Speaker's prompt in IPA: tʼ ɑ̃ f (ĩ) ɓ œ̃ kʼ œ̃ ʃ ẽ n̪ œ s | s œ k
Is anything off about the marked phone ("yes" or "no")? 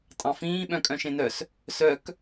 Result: yes